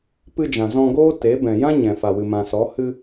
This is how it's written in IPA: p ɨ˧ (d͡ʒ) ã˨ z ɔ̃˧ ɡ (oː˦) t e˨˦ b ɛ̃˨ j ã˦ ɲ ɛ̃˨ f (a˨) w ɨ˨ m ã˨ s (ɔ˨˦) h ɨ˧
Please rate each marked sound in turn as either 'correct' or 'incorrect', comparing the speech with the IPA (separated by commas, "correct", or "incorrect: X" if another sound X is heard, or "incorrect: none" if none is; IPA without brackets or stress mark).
correct, correct, correct, correct